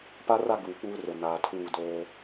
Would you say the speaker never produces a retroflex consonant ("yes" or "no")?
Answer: yes